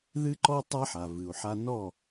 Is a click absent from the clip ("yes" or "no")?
no